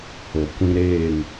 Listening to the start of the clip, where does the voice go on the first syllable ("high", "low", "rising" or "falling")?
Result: low